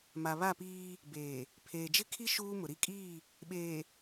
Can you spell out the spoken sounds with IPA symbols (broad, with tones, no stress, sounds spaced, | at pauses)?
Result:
m a˨ β a˦˨ p iː˦ | b eː˨ | pʰ eː˨ d͡ʒ ɪ˦ kʰ i˦ ʃ uː˦ m ʊ˨ ɾ i˦ kʼ iː˦˨ | ɓ eː˨